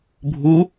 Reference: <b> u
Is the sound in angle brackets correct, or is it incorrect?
incorrect